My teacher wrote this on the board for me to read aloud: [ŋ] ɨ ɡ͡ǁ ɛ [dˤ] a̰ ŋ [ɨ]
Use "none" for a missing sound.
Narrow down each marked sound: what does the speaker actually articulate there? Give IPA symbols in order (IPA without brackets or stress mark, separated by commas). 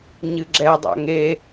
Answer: ɲ, dˤ, e